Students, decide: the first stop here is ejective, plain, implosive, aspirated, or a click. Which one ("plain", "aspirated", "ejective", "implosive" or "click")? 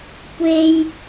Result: plain